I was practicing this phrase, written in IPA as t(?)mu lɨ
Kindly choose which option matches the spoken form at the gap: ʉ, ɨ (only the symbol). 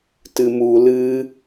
ɨ